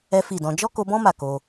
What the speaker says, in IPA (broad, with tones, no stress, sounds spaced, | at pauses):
ɛ˦ f i˦˨ d ɔ̃˧ d͡ʒ ɔ˦ k o˧ b ɔ̃˦ m a˦˨ k o˧